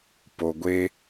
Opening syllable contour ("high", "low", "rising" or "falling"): low